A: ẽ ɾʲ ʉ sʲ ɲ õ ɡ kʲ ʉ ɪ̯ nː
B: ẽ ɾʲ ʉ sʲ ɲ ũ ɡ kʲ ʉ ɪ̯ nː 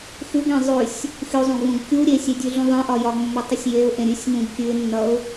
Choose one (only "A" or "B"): B